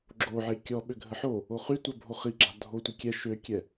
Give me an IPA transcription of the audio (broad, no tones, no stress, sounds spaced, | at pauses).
ɡ͡ǁ o ʕ e kʲ ɔ ɓ ø ɡʱ ə ħ o | o χ y tʷ œ bʱ o χ i ɡ͡ǁ a̤ dʱ o tʷ i kʲ ɛ ʃ ø kʲ ɛ